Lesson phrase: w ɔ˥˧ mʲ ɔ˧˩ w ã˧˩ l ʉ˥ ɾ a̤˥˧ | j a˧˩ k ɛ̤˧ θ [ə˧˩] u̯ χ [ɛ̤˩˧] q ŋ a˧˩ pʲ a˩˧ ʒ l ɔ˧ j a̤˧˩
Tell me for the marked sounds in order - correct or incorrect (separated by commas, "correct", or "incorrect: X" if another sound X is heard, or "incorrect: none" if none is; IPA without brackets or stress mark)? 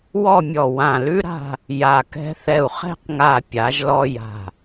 incorrect: ɛ˧˩, incorrect: ɛ̤˥˧